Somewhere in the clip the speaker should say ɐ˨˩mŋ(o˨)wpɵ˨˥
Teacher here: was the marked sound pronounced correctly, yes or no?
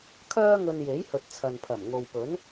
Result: yes